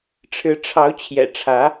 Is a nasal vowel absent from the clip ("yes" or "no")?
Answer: yes